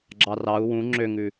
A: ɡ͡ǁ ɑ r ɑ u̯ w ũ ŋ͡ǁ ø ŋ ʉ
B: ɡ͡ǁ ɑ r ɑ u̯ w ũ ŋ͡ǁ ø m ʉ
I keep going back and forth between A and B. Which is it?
A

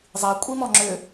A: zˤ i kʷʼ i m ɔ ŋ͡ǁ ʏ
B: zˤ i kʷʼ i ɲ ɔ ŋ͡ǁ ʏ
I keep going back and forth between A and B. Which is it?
A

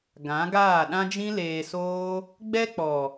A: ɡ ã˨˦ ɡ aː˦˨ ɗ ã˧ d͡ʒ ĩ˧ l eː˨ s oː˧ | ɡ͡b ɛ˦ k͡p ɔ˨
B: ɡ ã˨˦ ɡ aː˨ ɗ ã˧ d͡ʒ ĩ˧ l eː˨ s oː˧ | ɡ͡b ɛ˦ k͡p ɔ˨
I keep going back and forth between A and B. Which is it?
A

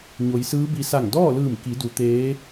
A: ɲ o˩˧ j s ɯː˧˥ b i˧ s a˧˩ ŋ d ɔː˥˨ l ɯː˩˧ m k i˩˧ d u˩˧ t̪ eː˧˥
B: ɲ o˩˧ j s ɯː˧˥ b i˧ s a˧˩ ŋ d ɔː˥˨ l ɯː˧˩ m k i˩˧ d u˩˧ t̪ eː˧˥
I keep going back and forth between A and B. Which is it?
B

